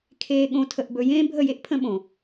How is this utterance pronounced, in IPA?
kʰ eː˧ ɠ õ˧ tʰ ə˧ ʔ b ɵ˧ j ẽː˦ bʱ ə˦˨ j e˦ ʔ pʰ ə̃˦ ɓ õ˨

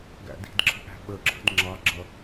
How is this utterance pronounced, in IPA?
ɡ æ̰ d i̤ d ǁʰ ə̤ ʔ æ̤ ɓ ə ǁʰ ə̤ d ŋ͡ǁ ɑ ɡ͡ǁ ʌ

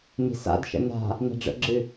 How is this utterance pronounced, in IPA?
n i̤ s a̰ d ʃ ə̰ n a̤ | n a̤ ɖ͡ʐ ə̰ ɡ͡ǁ ɨ

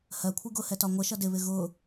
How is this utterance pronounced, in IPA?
h ɜ kʷʰ i ɡ ʊ h ɛ t ɒ ŋʷ ə ʃ ʌ d ɪ β ɪ ɣ ʊ

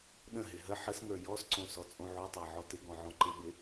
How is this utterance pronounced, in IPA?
ɗ ə̃ ɦ ɪ ɦ ə ħ ə s ŋ ə˞ j ɔ s ǀ õ s ɔ t͡sʼ õ ʕ o tˤ æ ʕ ɔ t ɪ ɡ ɔ̃ ʕ ɔ̃ ǃ ɪ ɓ ɪ

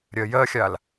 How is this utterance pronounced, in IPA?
ɾʲ ɜ j ɜ xʲ a l

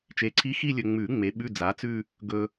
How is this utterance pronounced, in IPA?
t͡ʃ e˨ ǀʰ i˧˥ x i˥˧ lʲ ɵ˨ ŋ͡m ʉ˨˩˦ ŋ͡m e˩˥ ɓ ʉ˧˥˧ d͡z a˩˥ t͡s ʉ˥˧ | ɡ ɵ˨

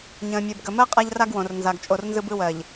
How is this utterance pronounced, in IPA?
ɲ ə̃ː˨ mʲ əː˨ b ɡ ə˨ m ɜ˦ qʼ a˦ ʎ r a˦ ɡ w õ˨ r n z a˨ ɡ t͡ʃʼ o˨ r n z ɯ˦ b ɯ˦ w ɜ˨ ʎ

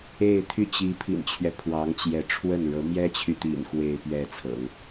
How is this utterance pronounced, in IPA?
e˥˧ ɪ̯ t̪ʰ y˥˩ t͡ɕ i˧˥ pʰ ḭ˨˩ n t͡ɕʰ ɥ ɛ˦ pʰ w ɑ˧˥ ŋ t͡ɕ j ɛ˧˥ ʈ͡ʂʰ w ə˥˩ n ɻ ɤ˧˥ m j ɛ˥ t͡ɕʰ y˨ t̪ ḭ˨˩ n x w e˥˧ ɪ̯ p ɥ ɛ˥˩ t͡sʰ ɤ̰˨˩˦ ŋ

